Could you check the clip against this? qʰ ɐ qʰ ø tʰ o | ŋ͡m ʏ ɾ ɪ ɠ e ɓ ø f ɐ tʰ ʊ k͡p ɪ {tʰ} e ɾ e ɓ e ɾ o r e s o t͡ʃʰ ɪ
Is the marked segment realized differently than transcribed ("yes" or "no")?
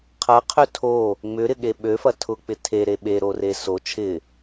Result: no